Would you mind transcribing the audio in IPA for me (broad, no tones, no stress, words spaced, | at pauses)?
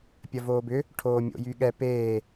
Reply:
pʲɐvoːbʏ | ʈʰoːmʲo̰jyɠɛ peː